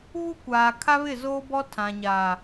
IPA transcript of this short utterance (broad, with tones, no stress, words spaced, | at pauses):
βu˦kʷaː˨ kʰa˦βɪ˦˨zoː˦bɔ˦ tʰã˨ɲaː˨